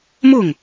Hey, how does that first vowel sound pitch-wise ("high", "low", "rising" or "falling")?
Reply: falling